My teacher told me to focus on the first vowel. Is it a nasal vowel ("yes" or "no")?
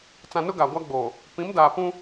yes